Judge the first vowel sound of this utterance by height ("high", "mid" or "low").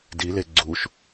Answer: high